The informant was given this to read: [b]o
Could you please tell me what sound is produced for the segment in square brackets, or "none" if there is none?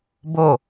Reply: b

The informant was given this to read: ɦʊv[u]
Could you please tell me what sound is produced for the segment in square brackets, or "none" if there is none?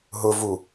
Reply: u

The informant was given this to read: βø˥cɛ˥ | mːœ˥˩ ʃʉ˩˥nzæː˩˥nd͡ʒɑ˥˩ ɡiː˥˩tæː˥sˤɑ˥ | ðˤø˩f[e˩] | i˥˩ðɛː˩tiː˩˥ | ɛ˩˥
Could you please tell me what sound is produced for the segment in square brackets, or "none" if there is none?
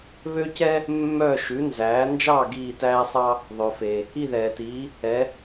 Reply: e˩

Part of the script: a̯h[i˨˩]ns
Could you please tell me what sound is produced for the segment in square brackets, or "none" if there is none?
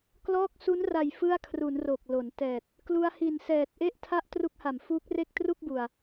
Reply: i˨˩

